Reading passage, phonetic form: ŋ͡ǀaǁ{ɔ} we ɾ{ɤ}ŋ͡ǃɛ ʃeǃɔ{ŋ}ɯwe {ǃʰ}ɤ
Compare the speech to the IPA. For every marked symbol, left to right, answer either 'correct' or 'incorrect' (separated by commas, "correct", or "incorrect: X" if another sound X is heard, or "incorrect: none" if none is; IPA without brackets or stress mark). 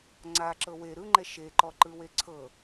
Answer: incorrect: ɤ, incorrect: ɯ, incorrect: ǃ, incorrect: ǀʰ